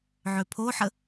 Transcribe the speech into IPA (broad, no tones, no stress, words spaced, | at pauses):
ʕøpʰoħə